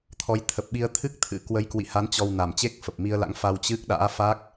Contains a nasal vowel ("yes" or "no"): no